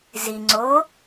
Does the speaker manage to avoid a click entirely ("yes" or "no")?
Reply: no